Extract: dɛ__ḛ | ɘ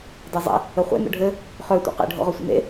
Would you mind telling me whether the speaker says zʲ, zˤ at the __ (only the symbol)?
zˤ